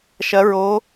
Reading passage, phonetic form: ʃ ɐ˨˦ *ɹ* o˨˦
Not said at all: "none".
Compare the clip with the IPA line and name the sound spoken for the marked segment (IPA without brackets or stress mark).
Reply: ɹ